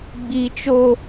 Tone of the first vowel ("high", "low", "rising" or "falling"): high